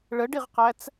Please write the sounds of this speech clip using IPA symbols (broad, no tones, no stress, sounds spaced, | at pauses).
ɭ ə ɖ i ʁ q æ t͡s